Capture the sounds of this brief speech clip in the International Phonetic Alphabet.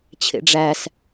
t͡ɕʰ ḛ ɖ͡ʐ æ s

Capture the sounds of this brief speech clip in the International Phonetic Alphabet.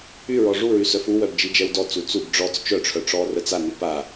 y ɹ ɔ ʐ u ɹ y s œ f u w œ b d͡ʒ i d͡ʒ ɛ w d ɔ t͡s u t͡s u b ɖ͡ʐ ɔ t͡s t͡ʃ œ ʈ͡ʂʰ œ ʈ͡ʂ ɔ r ə t͡s a n y p a

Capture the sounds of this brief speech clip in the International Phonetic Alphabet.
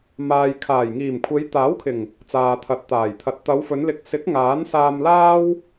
m aː˨ j kʰ aː˨˩ j ŋ iː˨˩ m kʷʰ e˨˧ j t̪ aː˨˥ w kʰ ɪ˨˩ ŋ | t͡s aː˨ t̪ʰ ɐ˨ t̚ t̪ aː˨˩ j t̪ʰ ɐ˨˥ t̚ t̪ ɐ˨˧ w f ɵ˨˧ n l ɪ˨ k̚ s ɪ˨˥ k̚ ŋ aː˨˥ n s aː˧ m l aː˥ w

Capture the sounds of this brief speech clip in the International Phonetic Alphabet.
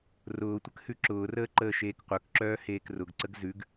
r ʊː tʷ ə k h ʉ ǁ ʊː r əː ǃ əː ʃ eː k qʷ œ k ǁ œː h eː k r ʊ ɡ ǀ ə ɡ z ʉ ɡ

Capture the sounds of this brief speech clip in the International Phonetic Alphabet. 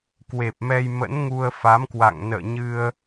k w e˨˩ p̚ m ɛ˧ j m ə̰˧˥ n ŋ u˧ ə̯ f a˨˦ m k w a̰˧˨ ŋ n ə̰ː˧˨ ɲ ɨ˧ ə̯

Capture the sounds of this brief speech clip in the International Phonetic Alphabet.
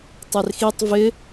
tˤ e r x i tˤ v ɪ

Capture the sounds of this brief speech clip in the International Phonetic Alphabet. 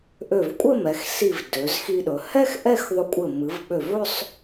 ʔ ø˧˩ v kʷʼ ɘ˥˧ m ɛ˩˧ x s i˧˩ v d ø˩˧ z x i˧ ɗ ɵ˩˧ h ɛ˥ x ʔ ɛ˥˧ x ðˤ ɵ˧ kʷʼ ɘ˧˩ m ɨ˩˧ v ɓ ø˧˩ v ɵ˥˧ sˤ

